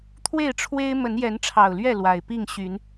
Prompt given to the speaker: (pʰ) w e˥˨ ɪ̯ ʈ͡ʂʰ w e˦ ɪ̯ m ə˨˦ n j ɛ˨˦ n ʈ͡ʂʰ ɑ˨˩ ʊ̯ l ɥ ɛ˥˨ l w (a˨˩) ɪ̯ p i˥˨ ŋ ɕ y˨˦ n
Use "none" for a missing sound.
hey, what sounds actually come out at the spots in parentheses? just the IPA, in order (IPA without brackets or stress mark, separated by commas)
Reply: t̪ʰ, a˨˩